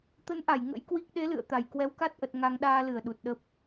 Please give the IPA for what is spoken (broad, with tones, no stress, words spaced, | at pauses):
t̪ə˨˦nʔa˧˩j ŋə̰˧˥jkwi˦˥k̚ ɗe˨˦lɨ̰˧˨ə̯ t̪a˧˩j kwɛ˨˦wka˦˥t̚ʔə˨˩t̚ ŋa˧ŋ ɗaː˧lɨ˧˩ə̯ ɗu˨˩t̚ɗə˦˥p̚